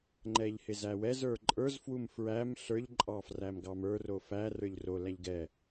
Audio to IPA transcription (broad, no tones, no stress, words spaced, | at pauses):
ŋ͡ǃɛʎhɪzæwɛz ə˞ǃʼə˞zfwum fɹæm ɬə˞ʎǃʼɑfræmɡɑm ə˞ro fæ rə˞ʎro læʎɡɛ